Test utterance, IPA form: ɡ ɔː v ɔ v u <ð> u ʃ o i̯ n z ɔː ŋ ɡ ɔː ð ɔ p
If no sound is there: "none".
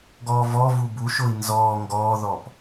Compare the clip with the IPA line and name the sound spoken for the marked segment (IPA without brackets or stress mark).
b